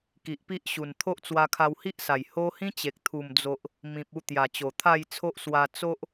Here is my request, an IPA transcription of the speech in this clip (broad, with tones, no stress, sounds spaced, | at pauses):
k i˨ ʔ p i˦ ʔ ɕ u˨˩ n t̪ʰ o˦ ʔ t͡s w a˧ kʰ a˧ w h i˦ ʔ s a˨˩ j h o˦ h ĩ˦ t͡ɕ e˨ k̚ t̪ʰ u˨˩ m d͡z o˨ ʔ | m ĩ˨ p̚ u˧ t̪ j a˨˩ t͡ɕ o˨˩ t̪ʰ a˥˧ j t͡sʰ o˦ ʔ s w a˧ t͡s o˦ ʔ